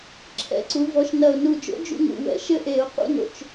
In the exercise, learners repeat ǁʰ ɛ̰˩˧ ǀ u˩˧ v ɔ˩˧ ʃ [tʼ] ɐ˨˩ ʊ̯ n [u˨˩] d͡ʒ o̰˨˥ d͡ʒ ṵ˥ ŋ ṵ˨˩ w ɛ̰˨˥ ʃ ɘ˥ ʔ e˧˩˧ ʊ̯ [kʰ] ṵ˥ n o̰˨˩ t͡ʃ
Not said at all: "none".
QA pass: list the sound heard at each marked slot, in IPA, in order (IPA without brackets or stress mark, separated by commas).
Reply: n, u˨˩, q